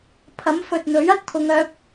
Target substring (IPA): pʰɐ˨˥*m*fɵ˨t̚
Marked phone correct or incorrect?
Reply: correct